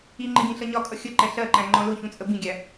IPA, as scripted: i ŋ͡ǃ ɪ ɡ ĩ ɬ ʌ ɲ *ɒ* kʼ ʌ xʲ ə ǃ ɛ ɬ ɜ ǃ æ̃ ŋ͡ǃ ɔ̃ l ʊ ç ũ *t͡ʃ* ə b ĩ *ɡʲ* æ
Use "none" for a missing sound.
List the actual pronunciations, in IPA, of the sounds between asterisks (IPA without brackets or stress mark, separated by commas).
ɒ, t͡sʼ, ɡʲ